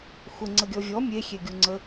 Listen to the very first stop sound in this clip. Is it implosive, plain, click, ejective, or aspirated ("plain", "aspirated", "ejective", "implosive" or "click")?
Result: click